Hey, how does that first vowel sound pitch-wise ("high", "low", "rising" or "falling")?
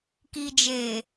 low